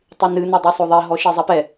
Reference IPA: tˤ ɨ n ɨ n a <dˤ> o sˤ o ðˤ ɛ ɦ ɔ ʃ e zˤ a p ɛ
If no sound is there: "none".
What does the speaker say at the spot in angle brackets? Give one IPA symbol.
dˤ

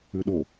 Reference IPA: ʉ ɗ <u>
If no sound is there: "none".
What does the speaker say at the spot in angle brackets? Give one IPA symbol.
o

